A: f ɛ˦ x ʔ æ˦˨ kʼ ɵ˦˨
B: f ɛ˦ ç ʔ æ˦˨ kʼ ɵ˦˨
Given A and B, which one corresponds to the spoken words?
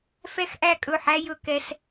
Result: A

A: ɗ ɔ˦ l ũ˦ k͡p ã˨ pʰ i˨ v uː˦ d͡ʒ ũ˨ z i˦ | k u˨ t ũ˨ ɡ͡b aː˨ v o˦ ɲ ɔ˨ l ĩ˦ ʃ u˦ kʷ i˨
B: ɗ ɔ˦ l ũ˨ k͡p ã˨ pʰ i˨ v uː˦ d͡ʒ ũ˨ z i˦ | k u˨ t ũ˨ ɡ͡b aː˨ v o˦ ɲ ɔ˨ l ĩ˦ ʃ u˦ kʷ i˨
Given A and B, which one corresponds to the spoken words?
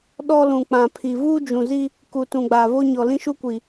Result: B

